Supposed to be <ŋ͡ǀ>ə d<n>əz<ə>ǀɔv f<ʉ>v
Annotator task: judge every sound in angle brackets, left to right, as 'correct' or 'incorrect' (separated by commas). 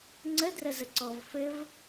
correct, incorrect, correct, incorrect